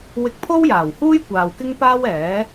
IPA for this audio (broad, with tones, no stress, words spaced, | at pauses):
wɪ˧k̚pʰo˥wjaː˨˩whuː˥j kʷaː˨wkɪ˥ŋpaː˥wɛː˨˥